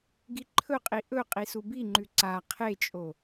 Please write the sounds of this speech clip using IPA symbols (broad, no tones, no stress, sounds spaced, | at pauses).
ɡ i ǃʰ ɵ qʼ i ʔ ɵ qʼ i s u b i ŋ͡ǃ ʉ ǀ a qʰ e t͡ʃʼ o